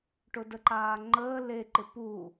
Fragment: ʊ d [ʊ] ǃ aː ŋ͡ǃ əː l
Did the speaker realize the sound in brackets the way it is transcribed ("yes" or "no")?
no